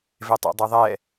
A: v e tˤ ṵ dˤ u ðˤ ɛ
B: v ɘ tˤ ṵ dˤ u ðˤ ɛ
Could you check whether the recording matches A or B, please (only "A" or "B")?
A